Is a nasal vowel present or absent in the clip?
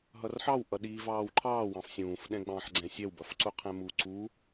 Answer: present